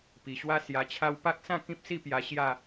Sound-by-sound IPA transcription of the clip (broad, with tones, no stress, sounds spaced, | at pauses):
p i˨˩ ɕ w a˥˧ s j a˧ t͡ɕʰ a˦ w p a˦ k̚ s ã˥˧ k ĩ˦ p̚ s i˥˧ p j a˧ ɕ j a˥˧